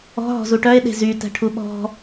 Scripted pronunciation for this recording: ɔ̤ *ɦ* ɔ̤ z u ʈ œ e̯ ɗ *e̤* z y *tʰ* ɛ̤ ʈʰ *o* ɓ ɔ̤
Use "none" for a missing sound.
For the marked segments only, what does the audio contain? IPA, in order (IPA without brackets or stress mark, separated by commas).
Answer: ɦ, e̤, t, u